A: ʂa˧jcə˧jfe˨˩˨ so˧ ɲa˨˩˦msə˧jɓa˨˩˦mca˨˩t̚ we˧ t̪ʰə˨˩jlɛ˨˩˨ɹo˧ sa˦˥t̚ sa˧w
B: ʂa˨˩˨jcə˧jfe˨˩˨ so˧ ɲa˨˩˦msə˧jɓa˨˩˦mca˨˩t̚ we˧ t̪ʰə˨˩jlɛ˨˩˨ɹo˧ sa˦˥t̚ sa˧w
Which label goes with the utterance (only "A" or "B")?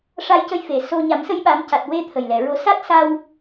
A